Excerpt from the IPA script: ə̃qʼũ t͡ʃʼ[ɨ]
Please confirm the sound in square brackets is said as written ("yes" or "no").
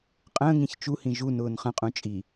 no